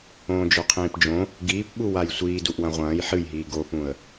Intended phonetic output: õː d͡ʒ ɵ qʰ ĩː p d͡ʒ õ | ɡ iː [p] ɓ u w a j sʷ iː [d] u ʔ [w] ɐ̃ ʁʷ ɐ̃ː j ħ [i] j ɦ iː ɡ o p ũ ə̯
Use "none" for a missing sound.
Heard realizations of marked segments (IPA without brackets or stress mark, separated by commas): p, d, w, ɨ